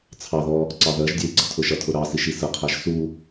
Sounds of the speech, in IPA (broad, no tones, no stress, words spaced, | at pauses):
t͡sʰɑðɔ | ǀɑðɜʒdʲɜi̯ ɡ͡ǀʌtʰʊʃʌtʰʊ ɾɑsiʃ isəqʰæʒ su